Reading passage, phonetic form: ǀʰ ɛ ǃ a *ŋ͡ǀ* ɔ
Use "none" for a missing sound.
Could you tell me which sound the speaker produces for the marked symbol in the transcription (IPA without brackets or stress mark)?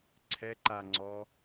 ŋ͡ǀ